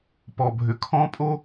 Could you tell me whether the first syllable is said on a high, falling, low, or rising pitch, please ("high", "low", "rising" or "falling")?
low